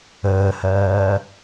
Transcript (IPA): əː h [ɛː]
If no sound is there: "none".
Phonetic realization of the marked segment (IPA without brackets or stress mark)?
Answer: ɜː